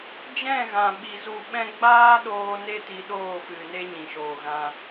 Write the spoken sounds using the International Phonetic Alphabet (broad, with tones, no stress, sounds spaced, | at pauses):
d͡ʒ ɛ̃˦˨ ɣ ã˨ ɓ i˧ z u˦˨ ɓ ɛ̃˦ ɡ͡b aː˦ ɗ oː˧ n e˦ t i˧ ɗ oː˦˨ f ɨ˨ n e˦ ɲ ĩ˨ ʃ oː˨ ɣ ã˧